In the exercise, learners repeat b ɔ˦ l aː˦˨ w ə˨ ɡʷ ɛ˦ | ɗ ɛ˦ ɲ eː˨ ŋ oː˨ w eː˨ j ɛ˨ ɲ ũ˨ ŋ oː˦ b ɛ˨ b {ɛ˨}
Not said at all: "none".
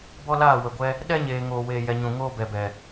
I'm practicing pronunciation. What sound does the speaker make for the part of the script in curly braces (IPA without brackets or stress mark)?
ɛ˨